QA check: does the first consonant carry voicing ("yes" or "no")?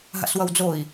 yes